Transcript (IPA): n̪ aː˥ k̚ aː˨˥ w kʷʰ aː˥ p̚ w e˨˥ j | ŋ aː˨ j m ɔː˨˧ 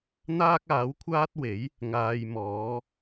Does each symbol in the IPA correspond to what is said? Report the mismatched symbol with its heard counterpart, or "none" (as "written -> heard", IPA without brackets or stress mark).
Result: p̚ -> t̚